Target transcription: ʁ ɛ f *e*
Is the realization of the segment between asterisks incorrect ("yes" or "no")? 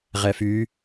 yes